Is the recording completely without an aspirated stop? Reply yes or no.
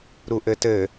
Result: yes